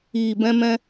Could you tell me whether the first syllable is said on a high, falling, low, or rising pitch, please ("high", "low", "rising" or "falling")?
low